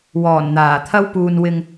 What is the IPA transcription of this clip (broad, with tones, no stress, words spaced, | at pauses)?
wɔː˨˩nn̪aː˨˩ t̪ʰɐ˥wpuː˧n wɪ˧ŋ